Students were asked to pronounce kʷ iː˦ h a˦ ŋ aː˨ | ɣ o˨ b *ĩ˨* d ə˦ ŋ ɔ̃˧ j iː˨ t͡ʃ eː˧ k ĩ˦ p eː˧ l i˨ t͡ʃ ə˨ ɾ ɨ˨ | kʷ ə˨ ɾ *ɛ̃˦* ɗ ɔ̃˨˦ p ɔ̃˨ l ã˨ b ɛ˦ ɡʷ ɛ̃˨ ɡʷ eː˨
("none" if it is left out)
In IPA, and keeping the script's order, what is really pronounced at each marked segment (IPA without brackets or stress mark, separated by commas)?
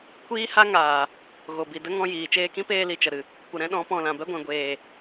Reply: i˨, ɛ̃˦